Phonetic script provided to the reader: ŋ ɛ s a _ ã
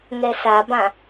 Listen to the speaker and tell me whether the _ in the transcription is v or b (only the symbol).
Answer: b